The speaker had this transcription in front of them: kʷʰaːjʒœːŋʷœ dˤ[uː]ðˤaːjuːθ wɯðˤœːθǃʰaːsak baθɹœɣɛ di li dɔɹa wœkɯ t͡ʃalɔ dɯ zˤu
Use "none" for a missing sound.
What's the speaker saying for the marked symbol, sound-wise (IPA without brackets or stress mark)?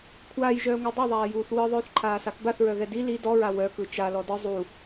u